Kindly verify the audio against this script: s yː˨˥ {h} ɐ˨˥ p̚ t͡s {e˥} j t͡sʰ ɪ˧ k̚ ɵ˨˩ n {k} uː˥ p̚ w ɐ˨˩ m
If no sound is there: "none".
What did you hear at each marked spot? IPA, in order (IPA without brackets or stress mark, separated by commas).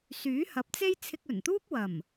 h, e˥, t̪